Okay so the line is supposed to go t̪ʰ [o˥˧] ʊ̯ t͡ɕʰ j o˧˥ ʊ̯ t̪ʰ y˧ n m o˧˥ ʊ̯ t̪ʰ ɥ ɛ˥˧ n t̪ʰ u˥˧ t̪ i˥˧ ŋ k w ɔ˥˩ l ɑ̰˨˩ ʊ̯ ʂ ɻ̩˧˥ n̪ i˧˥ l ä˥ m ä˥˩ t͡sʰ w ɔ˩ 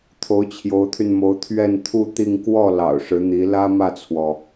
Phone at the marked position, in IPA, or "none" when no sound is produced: o˧˥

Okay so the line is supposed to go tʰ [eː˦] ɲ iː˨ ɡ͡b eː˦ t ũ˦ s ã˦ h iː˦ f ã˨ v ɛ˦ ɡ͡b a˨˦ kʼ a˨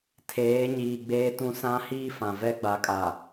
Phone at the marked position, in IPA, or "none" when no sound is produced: eː˨˦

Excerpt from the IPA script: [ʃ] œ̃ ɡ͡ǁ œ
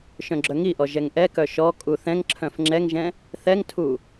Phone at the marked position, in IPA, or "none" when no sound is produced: ʃ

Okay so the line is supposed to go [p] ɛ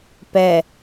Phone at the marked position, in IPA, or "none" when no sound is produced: p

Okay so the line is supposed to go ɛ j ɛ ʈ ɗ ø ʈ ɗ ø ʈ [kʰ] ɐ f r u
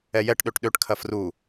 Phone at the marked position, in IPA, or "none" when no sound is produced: kʰ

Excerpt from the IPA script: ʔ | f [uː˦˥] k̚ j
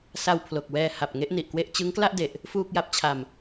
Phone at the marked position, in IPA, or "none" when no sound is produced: uː˥˩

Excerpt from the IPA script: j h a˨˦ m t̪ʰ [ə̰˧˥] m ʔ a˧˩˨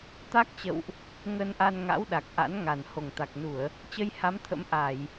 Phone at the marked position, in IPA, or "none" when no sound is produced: ə̰˧˥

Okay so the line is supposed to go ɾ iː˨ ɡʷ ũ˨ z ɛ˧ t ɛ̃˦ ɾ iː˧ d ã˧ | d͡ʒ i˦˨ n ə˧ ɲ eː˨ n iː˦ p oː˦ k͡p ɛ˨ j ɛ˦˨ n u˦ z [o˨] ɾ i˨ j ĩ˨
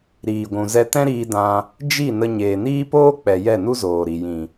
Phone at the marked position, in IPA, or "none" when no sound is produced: oː˨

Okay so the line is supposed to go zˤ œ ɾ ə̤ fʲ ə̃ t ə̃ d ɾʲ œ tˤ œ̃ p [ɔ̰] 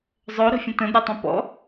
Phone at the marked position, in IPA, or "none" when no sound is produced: ɔ̰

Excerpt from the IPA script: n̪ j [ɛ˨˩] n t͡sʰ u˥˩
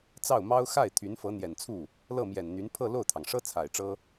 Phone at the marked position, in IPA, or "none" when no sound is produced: ɛ˨˩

